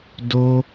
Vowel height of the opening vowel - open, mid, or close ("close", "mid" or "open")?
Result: mid